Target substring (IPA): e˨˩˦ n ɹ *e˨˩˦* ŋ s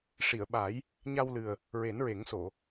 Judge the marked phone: correct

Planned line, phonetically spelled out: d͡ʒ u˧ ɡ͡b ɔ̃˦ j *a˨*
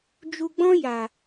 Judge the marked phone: correct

